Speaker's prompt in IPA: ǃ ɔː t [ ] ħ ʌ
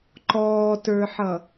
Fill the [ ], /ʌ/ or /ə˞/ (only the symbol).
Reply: ə˞